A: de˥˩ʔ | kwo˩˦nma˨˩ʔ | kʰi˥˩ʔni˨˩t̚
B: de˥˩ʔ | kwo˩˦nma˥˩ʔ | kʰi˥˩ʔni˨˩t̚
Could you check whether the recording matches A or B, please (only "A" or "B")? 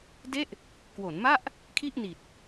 B